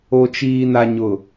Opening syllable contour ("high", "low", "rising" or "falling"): low